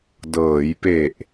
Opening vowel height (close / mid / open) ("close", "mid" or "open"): mid